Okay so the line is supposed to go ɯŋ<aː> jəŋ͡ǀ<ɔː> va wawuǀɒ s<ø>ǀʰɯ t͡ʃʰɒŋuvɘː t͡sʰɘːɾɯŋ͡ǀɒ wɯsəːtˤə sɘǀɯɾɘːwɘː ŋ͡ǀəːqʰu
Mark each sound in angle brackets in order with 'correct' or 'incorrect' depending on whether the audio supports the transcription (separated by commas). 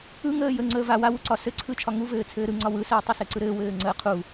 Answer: incorrect, incorrect, incorrect